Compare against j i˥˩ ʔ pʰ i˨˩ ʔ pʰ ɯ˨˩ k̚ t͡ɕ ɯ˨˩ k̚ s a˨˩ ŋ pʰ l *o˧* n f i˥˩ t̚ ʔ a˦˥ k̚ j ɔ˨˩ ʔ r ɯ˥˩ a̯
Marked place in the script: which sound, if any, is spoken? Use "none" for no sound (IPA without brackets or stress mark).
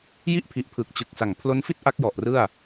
o˦˥